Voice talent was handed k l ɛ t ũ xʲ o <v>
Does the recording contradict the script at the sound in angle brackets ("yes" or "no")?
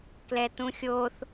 yes